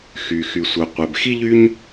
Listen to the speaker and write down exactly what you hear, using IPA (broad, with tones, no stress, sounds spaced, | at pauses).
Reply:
x y˩ x y˩ sʷ œ˩ qʷ ɛ˩ b x i˥ ʎ y˥ ɲ